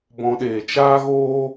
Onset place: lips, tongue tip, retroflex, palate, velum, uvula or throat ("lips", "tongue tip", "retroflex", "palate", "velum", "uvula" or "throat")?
lips